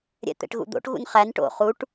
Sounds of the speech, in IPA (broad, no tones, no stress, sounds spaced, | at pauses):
ɾʲ ɛ̰ t̪ ɛ̰ ʈ ɣ ṵ d̪ o̰ ʈ ɣ ṵ n χ æ n ʈ o̰ χ u ʈ